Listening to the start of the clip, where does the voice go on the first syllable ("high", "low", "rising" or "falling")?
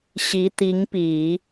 rising